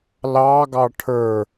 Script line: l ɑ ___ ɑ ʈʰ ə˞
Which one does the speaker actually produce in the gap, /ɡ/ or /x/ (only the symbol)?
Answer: ɡ